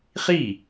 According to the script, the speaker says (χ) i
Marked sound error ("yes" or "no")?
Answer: no